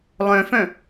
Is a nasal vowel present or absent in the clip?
present